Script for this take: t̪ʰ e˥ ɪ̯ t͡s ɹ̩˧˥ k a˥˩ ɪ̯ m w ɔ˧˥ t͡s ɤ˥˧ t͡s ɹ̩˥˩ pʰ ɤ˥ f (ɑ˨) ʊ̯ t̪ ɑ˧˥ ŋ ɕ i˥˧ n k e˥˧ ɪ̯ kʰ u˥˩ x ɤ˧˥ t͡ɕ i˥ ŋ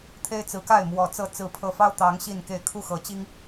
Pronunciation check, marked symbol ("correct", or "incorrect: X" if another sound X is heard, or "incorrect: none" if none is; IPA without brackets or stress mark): incorrect: ɑ˥